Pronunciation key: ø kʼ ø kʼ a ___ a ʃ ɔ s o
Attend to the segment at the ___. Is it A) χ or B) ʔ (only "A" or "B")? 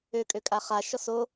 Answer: A